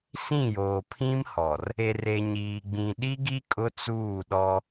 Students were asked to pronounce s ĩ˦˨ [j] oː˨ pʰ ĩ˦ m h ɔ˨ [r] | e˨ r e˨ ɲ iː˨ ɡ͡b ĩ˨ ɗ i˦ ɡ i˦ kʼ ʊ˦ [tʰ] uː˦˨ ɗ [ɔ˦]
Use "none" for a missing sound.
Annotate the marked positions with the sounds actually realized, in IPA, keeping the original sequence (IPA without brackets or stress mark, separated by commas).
j, r, t͡s, ɔ˦